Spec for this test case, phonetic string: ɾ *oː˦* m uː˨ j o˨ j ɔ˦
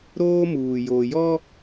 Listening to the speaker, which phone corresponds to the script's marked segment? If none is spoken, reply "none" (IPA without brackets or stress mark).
oː˦